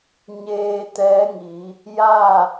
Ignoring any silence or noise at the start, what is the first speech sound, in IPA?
ɲ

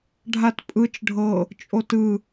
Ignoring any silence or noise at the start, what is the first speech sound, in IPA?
ɖʱ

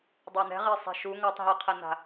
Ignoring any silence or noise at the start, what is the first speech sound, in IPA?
dˤ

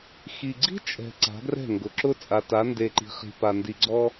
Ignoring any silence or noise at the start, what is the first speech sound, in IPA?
x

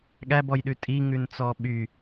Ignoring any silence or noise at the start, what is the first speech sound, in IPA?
ɠ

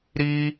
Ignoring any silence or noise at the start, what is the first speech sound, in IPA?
ɾ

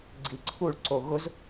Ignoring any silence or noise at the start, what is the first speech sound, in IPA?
ɡ͡ǀ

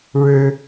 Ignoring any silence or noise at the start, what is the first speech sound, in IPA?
ɻ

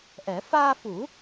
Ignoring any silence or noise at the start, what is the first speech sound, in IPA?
ʔ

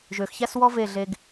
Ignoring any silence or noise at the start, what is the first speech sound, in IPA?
ʒ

